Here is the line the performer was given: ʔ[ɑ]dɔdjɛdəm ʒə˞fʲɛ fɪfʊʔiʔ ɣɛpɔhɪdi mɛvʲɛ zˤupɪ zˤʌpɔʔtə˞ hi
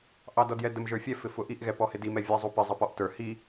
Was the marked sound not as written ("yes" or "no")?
no